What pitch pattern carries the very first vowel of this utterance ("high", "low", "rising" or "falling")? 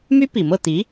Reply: high